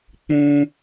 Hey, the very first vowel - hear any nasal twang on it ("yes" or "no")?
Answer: yes